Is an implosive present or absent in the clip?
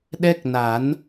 present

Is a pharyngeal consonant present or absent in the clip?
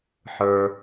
present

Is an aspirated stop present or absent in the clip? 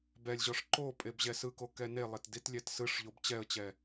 absent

